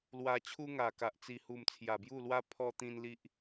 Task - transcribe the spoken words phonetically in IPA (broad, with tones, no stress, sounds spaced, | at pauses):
l w a˧ t͡ɕʰ u˦ ŋ a˨˩ k a˨ ʔ t͡s i˨˩ h u˨˩ m t͡sʰ j a˨˩ b j u˥˧ l w a˦ pʰ ɔ˧ t̪ ĩ˧ n l i˦ ʔ